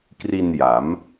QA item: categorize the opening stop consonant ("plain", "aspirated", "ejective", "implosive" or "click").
plain